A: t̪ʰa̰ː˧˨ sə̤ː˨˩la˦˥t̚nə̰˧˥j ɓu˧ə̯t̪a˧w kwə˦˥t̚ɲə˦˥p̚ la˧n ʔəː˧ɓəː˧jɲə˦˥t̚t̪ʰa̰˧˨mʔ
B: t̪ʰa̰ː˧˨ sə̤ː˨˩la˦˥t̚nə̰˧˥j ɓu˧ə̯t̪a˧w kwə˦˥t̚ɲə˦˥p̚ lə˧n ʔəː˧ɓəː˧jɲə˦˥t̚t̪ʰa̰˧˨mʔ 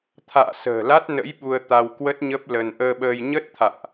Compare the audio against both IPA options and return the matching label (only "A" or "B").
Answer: B